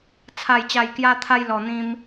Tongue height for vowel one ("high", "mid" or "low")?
low